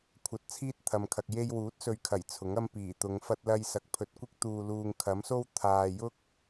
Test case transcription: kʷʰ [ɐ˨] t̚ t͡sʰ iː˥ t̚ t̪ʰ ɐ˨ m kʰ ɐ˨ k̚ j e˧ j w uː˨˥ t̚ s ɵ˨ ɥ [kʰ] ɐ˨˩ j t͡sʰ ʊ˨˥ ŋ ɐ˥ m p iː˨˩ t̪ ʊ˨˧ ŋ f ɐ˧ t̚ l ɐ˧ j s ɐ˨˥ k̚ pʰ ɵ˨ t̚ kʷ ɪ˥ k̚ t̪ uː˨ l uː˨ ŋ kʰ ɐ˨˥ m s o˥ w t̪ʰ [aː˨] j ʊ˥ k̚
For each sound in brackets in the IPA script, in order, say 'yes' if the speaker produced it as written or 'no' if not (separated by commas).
no, yes, yes